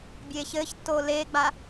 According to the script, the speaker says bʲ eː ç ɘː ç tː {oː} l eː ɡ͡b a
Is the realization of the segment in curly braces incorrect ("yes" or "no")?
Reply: no